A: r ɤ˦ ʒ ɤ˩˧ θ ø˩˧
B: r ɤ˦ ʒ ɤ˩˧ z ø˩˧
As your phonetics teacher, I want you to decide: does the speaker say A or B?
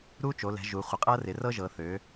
A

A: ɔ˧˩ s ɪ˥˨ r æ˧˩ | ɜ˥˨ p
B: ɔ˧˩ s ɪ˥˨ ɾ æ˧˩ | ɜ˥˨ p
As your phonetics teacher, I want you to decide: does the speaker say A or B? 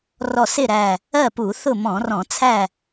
B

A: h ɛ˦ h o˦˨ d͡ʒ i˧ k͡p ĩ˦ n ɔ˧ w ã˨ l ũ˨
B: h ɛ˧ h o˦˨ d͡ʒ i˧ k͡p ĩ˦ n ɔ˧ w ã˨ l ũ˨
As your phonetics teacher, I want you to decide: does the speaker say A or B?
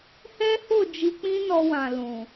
A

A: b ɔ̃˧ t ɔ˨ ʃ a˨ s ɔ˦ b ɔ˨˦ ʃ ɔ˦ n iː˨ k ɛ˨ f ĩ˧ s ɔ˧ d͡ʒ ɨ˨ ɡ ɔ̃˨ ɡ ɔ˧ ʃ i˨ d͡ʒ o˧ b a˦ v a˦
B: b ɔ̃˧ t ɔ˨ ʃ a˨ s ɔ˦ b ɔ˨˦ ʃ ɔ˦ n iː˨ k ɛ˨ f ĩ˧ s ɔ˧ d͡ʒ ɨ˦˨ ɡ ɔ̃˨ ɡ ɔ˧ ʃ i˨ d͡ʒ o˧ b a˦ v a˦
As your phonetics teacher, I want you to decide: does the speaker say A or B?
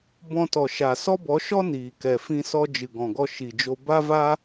A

